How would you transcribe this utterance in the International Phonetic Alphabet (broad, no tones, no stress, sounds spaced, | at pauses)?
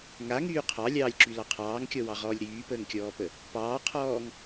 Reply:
ŋ a ŋ yː qʰ ɑ lʲ ɑː lʲ ǁ y l ɑ qʰ ɑː ŋ kʲ ɔ w ɑ ʁ ɔː lʲ ɾ yː p əː ŋ kʲ ɔː p ə | p ɑː qʰ ɔː ŋ